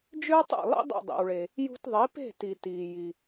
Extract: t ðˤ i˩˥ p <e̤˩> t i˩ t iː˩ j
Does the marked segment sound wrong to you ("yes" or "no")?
yes